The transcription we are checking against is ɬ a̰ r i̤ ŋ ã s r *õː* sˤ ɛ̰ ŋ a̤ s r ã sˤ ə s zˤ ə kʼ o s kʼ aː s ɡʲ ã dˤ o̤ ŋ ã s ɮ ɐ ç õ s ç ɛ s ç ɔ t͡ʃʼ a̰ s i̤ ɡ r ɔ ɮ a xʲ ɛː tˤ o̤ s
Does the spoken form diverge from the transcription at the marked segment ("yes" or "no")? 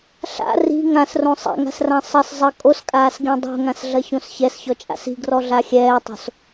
yes